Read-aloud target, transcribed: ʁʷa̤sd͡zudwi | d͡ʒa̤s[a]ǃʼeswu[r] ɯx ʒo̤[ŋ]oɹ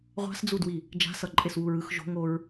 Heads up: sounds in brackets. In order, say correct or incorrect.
incorrect, incorrect, correct

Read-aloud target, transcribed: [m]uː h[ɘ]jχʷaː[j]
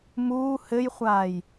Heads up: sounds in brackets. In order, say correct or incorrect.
correct, correct, correct

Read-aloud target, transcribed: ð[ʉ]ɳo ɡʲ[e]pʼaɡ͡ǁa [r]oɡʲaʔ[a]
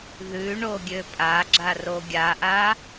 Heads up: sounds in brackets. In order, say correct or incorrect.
correct, incorrect, correct, correct

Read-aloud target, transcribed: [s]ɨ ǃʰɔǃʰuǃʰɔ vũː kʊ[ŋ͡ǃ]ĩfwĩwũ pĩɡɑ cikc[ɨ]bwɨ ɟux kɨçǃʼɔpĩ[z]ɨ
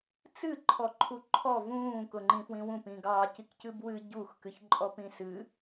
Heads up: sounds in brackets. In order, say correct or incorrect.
incorrect, correct, correct, incorrect

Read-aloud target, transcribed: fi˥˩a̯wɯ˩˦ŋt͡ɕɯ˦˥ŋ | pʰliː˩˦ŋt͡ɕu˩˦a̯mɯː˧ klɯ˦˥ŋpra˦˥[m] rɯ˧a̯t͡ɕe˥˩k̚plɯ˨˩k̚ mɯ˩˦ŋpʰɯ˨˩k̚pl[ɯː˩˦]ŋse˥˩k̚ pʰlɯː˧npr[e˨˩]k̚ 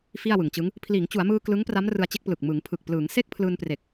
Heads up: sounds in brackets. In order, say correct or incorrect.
correct, correct, correct

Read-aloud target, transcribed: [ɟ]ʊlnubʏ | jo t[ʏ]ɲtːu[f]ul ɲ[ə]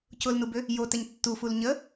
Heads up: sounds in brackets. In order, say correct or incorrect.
incorrect, incorrect, correct, correct

